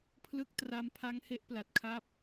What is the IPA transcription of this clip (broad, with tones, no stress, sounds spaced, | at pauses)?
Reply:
pʰ l ɯ˦˥ k̚ t r a˧ m pʰ a˦˥ ŋ h e˥˩ ʔ p l a˨˩ t̚ kʰ a˥˩ p̚